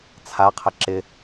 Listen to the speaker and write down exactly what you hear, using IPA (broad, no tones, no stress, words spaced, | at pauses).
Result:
t͡sʰaqʰə ǁɪ